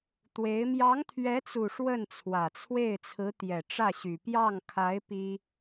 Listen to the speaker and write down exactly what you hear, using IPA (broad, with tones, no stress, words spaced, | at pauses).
t̪we˧˥ɪ̯ mjɑ˧˥ŋt̪ʰɥɛ˧˥t͡su˨˩ ʂwə˥˩nt͡sʰwä˨˩t͡sʰwe˥˩ɪ̯ t͡sʰɹ̩˧˥t̪jɛ˨˩ʈ͡ʂä˥˩ɕy˨˩ pjɑ˥˩ŋkʰa˧˥ɪ̯ pi˥